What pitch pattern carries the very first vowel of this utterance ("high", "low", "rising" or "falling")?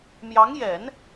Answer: rising